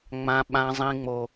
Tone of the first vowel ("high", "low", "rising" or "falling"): high